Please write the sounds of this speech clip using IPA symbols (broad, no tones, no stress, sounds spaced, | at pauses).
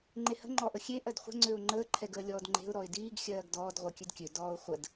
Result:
ŋ͡ǃ e h ə̤ ŋ͡ǃ ɔ ʔ ə xʲ e ʔ ɜ d χʷ ə̤ ŋ͡ǀ ø ʊ̯ ŋ͡ǃ əː ǃʰ ɛ ɡ əː lʲ ɔː d ŋ͡ǃ e̤ ʊ̯ ɾ ɔ ɪ̯ d iː ɡ xʲ ɜː ɡ d ɔː d ʁʷ əː kʲ ø d kʲ ø d ɔː ʊ̯ χʷ ə d